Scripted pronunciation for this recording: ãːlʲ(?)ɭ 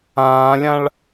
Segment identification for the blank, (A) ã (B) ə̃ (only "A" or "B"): A